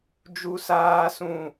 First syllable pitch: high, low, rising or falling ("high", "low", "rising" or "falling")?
low